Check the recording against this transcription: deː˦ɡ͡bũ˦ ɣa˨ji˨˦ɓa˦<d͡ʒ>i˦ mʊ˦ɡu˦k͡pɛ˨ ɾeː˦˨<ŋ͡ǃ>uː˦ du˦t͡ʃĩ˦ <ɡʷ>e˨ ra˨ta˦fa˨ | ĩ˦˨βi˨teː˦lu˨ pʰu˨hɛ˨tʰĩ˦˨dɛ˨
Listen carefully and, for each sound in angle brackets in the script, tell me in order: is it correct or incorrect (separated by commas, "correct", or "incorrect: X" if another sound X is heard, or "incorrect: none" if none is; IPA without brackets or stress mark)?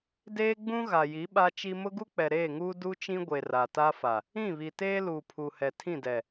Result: incorrect: t͡ʃ, incorrect: ŋ, correct